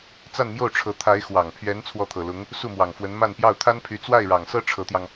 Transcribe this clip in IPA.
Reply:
t͡s a˥˧ n m j o˥˩ ʊ̯ ʈ͡ʂʰ ɤ˧˥ t̪ʰ a˧˥ ɪ̯ x w ɑ˨˩ ŋ pʰ ɥ ɛ˧˥ n t͡sʰ w ɔ˥˩ t̪ʰ ɤ˨˩ l ʊ˧˥ ŋ | s u˥˩ m w ɑ˨˩ ŋ f w ə˧˥ n m a˥˧ n p j ɑ˥˩ ʊ̯ t̪ʰ a˥ n pʰ y˧˥ t͡s w a˥˩ ɪ̯ ɻ ɑ˨˩ ŋ s ɤ˥ ʈ͡ʂʰ ɤ˧˥ t̪ j ɑ˧ ŋ

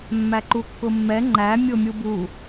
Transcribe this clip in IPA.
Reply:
mː æ ǃ u kː ʊ mː ɛ ŋ͡ǃ æ mʲ ʊ mʲ u b u

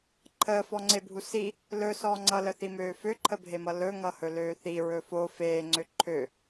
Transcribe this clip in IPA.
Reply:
ǃʰ əː f ɔ ŋ͡ǀ e bʱ u s i | l ɵ s ɔː ŋ͡ǀ ʌ l ə θ i m øː f ø ǃʰ ə bʱ e m ʌ l ɵ ŋ ʌ h ɵ l øː θ i ɹ ɵ f o f eː ŋ͡ǀ ø ǃʰ ø

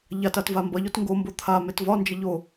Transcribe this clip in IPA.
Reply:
ʎ a t a t v a m b ʌ ʎ o t ŋ ɡ o m b o t̪ʰ a m e t v ɒ n d͡ʒ ə ʎ o

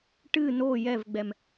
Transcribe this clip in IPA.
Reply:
ʈ ɨ n o j ɛ v ɡ͡b ɛ m

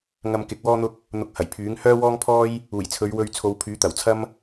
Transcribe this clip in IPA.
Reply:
ŋ ɐ˧ m k ɪ˨˥ k̚ w ɔː˥ n̪ ʊ˥ k̚ | n̪ ʊ˧ k̚ h ɐ˨˩ j pʰ yː˨˥ ŋ h œː˥ w ɔː˥ ŋ pʰ ɔː˥ j | uː˨˩ j t͡sʰ ɵ˨˧ ɥ w ɵ˧ ɥ t͡sʰ o˨˧ w pʰ yː˨˥ t̪ ɐ˨˩ w t͡sʰ ɐ˥ m

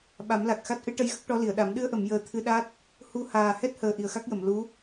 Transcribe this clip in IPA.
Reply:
ɓ a˨˩˦ m l a˨˩ k̚ x a˦˥ t̚ ʔ ɨ˧˥ ʈ ə˧ j ɣ ə˦˥ k̚ ʈ ɔ˧˥ l i˨˩˨ ə̯ ɗ a˨˩˦ m ɗ ɨ˧ ə̯ ʔ ə˨˩˨ m j əː˨˩ t̪ʰ ɨ˧ ɗ a˦˥ t̚ | h u˧ h aː˨˩ h ɛ˦˥ t̚ h əː˨˩ ʔ i˨˩ ə̯ x a˦˥ k̚ j ə˨˩˨ m l u˧˥

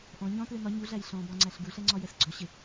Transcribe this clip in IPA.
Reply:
ʔ ɔ̃ ɲ ɔ̃ t l ɪ n ɒ ɲ u ɮ æ j ɬ ɔ̃ b ɒ ŋ͡ǀ æ ɬ ɡ u ɬ ɛ ŋ͡ǀ ɒ j ɛ s ɡ͡ǀ ɔ ɕ ɪ

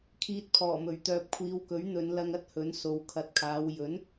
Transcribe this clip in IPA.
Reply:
kʰ iː˧ t̚ pʰ ɔː˨˩ m ɵ˨˩ ɥ t̪ œː˨ p̚ kʷʰ iː˨˧ w k ɵ˨˥ ɥ n̪ ɵ˨˧ n l ɐ˧ ŋ ɐ˥ t̚ h ɵ˨˥ n s o˨ w kʰ ɐ˨ t̚ kʰ aː˨˧ w j ɵ˨˥ n

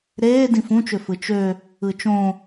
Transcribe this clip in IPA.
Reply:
ɾ eː d ĩ f ũ t͡ʃ ø f ɯ t͡ʃ ø | ɯ t͡ʃ õ

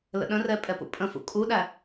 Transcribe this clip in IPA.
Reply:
l ə̰ ɗ ə̃ r ɛ pʼ ɛ p ṵ pʼ ə̃ f ṵ kʼ u ɗ æ

